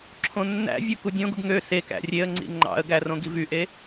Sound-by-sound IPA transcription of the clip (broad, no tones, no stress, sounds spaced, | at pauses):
ǁʰ õ nː æ̰ vʲ o k u dʲ õ ɡ u ɡ ŋ ø s e k æ̰ rʲ e ə̯ ŋ͡ǀ ḭ ŋ͡ǃ ɑ̰ ə̯ ɡ æ r õ ɡ i v y ʔ e